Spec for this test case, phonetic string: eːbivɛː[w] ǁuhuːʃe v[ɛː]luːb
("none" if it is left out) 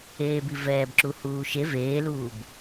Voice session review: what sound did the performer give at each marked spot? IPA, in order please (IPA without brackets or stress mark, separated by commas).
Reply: b, eː